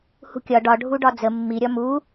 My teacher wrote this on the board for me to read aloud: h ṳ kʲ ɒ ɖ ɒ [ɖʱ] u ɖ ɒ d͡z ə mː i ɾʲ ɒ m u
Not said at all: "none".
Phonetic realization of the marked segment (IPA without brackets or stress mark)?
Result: ɖʱ